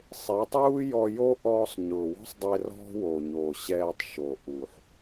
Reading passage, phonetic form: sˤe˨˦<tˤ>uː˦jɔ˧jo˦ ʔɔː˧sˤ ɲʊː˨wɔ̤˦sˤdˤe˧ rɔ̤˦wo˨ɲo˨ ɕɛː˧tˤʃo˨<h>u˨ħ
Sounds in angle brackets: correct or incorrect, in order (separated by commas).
correct, incorrect